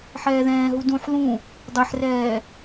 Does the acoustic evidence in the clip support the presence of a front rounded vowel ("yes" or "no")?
no